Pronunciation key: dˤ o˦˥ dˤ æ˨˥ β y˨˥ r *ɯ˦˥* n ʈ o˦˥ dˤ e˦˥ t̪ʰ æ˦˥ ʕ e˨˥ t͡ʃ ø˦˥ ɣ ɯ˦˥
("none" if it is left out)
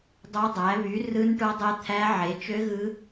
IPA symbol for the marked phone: ɯ˦˥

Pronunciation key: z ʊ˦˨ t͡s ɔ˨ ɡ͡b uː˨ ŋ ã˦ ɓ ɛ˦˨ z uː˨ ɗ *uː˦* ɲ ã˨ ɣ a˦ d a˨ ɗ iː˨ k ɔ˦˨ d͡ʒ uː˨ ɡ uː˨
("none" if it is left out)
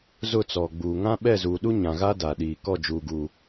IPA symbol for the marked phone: u˦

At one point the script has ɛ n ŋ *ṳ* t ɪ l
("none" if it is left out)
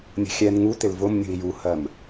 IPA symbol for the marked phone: u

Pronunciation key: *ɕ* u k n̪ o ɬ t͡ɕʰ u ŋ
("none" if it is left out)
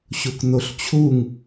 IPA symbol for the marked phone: ɕ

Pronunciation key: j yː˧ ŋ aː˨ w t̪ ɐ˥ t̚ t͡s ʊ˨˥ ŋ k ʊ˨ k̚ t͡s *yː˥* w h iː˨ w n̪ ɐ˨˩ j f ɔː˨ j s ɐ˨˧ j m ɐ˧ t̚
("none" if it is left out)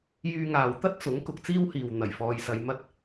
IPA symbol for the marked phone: iː˥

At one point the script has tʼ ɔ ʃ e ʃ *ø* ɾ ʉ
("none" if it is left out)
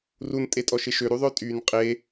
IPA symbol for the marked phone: ø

